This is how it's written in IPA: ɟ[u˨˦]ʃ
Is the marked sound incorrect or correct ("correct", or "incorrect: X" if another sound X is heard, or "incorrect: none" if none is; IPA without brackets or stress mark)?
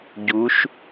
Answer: correct